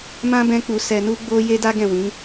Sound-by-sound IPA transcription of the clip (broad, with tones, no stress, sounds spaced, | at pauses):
m ã˦ b ɛ̃˦ k͡p u˧ s ɛ˧ n u˦ ɡ͡b o˦ j e˦ d a˦ ɡ ɛ̃˦˨ w ĩ˨˦